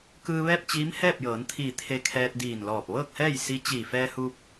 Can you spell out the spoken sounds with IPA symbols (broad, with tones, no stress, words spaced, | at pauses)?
kɯː˧ ʋɛː˥˨p̚t͡ɕiː˧˥m hɛː˥˨p̚jɤː˩˧nt̪ʰiː˧˩ t̪ʰe˧kʰɛː˧t̚diː˧˩nlɔː˧˩p̚ ʋɤː˥˨k̚hɛː˥˨j si˧˥ t͡ɕiː˧˩fɛː˧hu˧p̚